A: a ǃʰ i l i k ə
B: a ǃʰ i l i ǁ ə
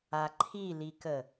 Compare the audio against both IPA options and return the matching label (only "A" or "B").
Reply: A